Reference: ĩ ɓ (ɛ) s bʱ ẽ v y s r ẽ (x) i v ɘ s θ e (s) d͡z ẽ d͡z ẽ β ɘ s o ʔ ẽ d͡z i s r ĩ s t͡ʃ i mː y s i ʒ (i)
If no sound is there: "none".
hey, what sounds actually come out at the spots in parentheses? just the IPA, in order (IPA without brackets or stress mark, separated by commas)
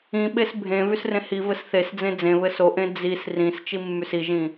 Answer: e, h, s, ĩ